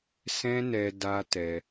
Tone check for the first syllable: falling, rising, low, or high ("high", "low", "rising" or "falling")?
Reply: high